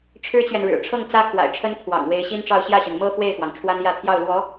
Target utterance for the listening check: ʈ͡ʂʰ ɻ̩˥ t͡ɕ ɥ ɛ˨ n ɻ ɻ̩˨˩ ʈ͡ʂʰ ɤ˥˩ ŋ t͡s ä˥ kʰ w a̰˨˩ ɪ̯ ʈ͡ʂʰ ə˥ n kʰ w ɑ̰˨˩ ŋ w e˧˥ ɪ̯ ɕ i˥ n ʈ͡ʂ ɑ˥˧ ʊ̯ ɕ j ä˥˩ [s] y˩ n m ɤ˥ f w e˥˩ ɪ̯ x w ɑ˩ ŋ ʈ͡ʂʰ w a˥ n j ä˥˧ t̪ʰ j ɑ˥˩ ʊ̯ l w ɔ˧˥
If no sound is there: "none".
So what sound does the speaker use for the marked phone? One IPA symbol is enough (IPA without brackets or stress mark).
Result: ɕ